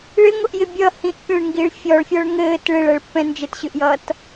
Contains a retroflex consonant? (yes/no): yes